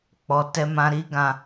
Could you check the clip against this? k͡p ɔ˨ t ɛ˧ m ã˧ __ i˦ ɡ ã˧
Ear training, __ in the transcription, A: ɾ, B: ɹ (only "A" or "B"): A